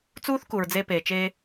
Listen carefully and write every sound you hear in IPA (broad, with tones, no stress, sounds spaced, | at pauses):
t͡s uː˦ θ k u˨ ɹ d͡z e˦ p eː˨ t͡ʃ eː˦